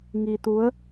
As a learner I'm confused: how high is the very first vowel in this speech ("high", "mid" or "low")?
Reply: high